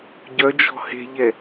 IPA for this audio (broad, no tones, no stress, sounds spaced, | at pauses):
ɟ œ d͡ʒ ɔ̤ h e̤ ʎ ɛ